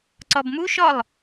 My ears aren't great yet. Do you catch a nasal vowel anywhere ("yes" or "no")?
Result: no